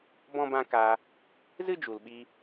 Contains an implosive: yes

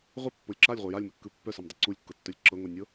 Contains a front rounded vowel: yes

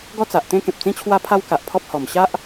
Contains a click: no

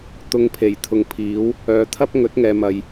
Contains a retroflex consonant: no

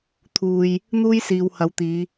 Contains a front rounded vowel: no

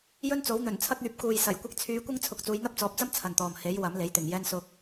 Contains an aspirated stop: yes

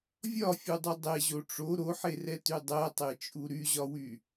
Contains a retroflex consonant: yes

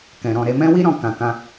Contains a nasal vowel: yes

